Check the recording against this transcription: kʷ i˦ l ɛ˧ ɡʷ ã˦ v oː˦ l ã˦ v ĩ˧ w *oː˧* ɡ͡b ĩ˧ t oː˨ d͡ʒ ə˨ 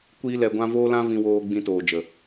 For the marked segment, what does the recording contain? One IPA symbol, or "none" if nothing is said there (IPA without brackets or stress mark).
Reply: oː˧